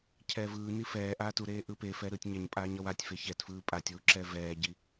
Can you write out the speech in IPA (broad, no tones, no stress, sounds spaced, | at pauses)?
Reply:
cʰ ɛː v ɯː n i f ɛː ʔ aː t u ɾ eː ʔ ɯ p e f ɛ ɾ ɯː tʲ ɲ ɛ ɲ pʼ aː ɲ ʌ w a tʲ f e ç ɛ t f ɯː pʼ a tʲ w u ǁ ɛ v ɛː ɟ i